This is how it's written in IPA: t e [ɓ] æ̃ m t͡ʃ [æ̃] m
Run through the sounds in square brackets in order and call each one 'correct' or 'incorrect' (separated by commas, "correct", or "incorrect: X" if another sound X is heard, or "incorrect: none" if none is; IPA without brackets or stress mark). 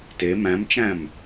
incorrect: m, correct